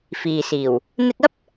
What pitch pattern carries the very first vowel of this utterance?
low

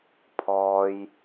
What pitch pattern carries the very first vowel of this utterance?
low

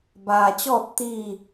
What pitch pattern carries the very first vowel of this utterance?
low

